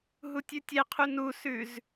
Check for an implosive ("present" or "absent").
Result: absent